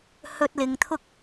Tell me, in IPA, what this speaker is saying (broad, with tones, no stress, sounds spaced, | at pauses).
h ɵ˧ t̚ l ɪ˨ ŋ t̪ʰ ʊ˥ k̚